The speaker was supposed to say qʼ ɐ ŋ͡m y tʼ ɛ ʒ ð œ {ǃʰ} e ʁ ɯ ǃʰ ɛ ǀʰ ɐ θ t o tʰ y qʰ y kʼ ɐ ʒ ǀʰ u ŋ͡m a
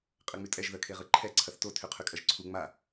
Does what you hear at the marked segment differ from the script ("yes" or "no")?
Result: yes